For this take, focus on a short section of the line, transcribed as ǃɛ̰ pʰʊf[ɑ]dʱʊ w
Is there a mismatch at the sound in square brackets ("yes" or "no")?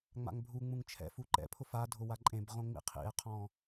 yes